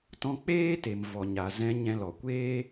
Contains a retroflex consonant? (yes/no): no